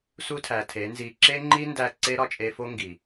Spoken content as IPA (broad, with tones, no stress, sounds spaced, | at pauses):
s u˦ tʰ æ˨ tʰ e˨˦ n z i˧ ǁ e˦ ŋ͡ǃ i˦ n d æ˦˨ ǀ e˦ ɾ ɒ˧ t͡ʃʼ e˧ f o˦ ŋ ɡ i˨